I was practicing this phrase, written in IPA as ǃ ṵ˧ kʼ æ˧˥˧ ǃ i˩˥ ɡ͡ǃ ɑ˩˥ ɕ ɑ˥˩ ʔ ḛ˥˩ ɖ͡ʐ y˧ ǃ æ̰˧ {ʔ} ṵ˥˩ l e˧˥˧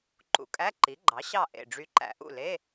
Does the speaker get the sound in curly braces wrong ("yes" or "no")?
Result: no